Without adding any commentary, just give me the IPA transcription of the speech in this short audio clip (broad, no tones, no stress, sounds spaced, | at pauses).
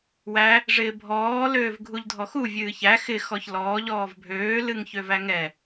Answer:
w æ | ʐ ɪː bʱ ɔː l øː v ɡʱ u ʎ dʱ ɔ x u vʲ ɨː ç æ x ɪ x ɔ ç l ɔː ʎ ɔː v bʱ øː l ɨ ŋ ç ø v æ ŋ ɛ